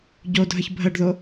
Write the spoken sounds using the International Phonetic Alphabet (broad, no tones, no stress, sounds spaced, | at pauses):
ɟ o dʱ ə ç bʱ ə ɖ ð o